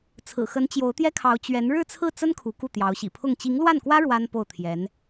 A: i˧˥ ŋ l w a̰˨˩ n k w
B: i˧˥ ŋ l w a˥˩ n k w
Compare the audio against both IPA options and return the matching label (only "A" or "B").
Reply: B